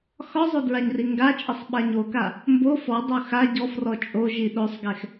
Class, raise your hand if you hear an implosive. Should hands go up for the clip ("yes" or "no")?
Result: yes